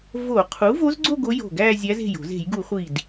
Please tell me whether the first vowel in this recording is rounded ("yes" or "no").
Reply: yes